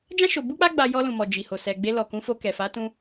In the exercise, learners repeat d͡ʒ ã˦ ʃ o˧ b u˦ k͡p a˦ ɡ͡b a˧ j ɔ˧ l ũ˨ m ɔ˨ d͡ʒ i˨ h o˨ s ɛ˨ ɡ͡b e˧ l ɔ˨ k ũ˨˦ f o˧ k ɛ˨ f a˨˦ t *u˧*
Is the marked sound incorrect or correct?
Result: incorrect